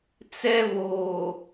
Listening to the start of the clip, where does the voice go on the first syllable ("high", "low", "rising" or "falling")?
high